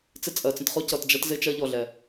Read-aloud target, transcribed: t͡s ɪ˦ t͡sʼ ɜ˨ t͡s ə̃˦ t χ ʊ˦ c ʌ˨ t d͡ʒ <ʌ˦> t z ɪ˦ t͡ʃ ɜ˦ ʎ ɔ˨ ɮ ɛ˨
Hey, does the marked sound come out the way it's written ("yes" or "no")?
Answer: yes